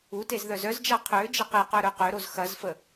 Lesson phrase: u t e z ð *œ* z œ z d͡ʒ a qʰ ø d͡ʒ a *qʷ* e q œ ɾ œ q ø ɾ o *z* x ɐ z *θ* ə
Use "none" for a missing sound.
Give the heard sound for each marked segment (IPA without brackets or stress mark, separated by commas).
œ, q, z, f